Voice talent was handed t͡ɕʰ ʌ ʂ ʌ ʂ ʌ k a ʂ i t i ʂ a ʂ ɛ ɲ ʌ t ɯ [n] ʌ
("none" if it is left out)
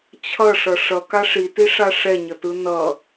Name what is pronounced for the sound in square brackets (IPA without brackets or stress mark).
n